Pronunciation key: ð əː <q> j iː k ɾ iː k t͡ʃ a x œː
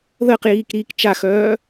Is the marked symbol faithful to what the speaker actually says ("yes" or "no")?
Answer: yes